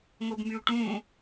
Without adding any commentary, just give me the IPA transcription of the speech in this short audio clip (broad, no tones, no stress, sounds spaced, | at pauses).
ŋ o b m y u̯ ʈ ũ